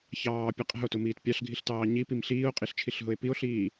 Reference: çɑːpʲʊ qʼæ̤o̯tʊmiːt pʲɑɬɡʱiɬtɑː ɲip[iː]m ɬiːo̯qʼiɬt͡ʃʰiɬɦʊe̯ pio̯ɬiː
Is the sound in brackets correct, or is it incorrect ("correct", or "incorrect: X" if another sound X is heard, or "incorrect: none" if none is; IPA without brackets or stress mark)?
incorrect: i